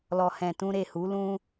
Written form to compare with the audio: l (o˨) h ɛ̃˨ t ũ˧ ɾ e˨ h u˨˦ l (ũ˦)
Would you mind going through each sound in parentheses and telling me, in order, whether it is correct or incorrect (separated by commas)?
incorrect, correct